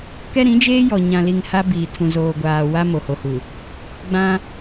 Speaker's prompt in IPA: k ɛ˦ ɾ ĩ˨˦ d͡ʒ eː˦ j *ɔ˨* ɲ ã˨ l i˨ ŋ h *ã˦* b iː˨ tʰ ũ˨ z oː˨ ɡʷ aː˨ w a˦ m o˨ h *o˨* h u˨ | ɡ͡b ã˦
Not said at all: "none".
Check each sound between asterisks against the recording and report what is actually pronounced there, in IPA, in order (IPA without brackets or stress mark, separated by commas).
ɔ˨, a˦, o˨